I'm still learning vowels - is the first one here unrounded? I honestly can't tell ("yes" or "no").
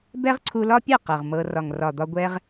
yes